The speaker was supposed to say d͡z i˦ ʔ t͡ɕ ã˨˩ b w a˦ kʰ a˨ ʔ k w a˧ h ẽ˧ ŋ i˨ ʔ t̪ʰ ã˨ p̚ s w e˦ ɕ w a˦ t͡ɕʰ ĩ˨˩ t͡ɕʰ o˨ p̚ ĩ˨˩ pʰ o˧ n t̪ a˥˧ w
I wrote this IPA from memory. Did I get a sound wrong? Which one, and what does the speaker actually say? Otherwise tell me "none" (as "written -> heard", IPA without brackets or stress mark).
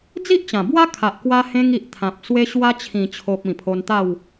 none